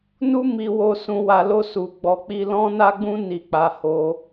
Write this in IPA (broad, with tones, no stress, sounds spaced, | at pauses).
n u˦ m i˧ w o˧ s ũ˧ w a˧ l o˦ s u˧ ɡ͡b ɔ˧ k͡p i˦ l ɔ̃˦ n a˦ ɡ͡b ũ˦ n i˧ k͡p a˧ h o˧